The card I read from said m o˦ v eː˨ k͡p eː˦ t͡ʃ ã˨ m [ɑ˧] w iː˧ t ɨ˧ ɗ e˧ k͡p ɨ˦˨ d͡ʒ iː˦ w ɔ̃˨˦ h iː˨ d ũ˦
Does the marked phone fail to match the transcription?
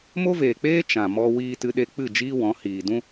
yes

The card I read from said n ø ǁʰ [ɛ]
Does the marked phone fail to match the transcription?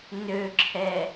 no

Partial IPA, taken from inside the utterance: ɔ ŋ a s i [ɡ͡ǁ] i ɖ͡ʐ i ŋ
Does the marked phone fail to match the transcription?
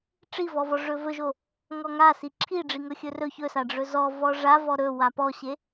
yes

